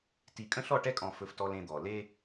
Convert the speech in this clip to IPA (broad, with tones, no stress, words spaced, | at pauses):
ti˨ kʼə̃˦ɬɔ˦˨ʈɛ˦kʼɔ̃˨ fɵ˦ftɔ˦lẽ˦d̪ɔ˨ le˦